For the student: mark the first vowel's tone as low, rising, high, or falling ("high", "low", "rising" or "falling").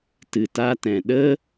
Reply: low